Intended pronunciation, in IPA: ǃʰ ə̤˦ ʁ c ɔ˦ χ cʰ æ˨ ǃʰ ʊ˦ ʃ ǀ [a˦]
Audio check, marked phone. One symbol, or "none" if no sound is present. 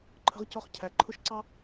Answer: ɑ˦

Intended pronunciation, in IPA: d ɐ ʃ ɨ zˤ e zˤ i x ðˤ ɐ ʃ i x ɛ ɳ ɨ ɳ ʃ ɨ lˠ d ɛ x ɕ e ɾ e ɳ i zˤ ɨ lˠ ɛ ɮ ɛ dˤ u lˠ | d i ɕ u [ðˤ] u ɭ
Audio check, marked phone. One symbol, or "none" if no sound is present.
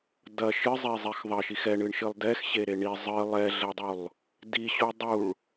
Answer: dˤ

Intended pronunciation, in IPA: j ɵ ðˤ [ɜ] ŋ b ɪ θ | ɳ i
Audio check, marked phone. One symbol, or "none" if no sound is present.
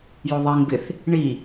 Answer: ɛ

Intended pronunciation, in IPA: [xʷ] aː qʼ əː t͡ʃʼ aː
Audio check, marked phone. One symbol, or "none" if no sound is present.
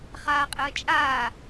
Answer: χ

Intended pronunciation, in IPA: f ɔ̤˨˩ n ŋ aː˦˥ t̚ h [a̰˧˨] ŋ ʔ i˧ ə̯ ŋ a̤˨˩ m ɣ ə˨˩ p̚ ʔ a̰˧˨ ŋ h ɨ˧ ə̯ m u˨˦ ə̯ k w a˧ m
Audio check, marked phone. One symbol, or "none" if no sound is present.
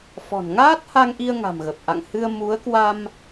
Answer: a˧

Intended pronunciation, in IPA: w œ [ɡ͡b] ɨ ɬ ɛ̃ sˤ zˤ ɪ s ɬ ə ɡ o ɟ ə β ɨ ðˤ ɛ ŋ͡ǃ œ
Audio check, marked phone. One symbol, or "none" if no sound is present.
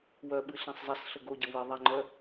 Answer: ɓ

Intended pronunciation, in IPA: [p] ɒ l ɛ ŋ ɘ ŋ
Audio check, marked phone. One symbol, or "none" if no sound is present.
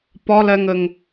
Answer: p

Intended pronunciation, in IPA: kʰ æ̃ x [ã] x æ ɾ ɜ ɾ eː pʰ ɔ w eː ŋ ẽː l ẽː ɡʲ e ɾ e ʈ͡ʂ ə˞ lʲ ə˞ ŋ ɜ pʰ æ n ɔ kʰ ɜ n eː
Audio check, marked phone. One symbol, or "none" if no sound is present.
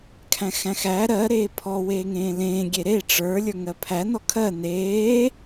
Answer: æ̃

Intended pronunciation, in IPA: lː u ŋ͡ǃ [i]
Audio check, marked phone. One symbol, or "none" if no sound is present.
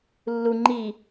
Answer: i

